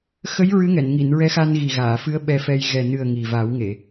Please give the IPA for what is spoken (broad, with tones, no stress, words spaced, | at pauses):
xə˧˥j ɹɨ˧˥ŋɛ˨˩˨nŋi˨˩˨n ɹɛ˧˥xa˧nɣi˨˩ɣaː˨˩˨ fɨ˧˥ə̯ ɓɛ˧fɛ˧j ɣɛ˨˩nɨ˨˩ə̯ ŋi˨˩ va˨˩˦wŋe˨˩˨